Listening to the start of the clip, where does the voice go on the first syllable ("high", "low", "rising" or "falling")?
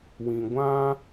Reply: low